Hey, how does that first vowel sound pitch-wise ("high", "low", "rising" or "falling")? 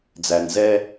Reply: low